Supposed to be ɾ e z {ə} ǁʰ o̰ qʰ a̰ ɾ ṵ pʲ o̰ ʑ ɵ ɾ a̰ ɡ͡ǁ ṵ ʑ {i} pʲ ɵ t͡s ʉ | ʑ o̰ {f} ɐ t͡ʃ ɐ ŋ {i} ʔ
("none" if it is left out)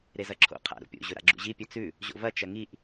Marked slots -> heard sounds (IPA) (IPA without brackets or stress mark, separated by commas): ɐ, i, v, i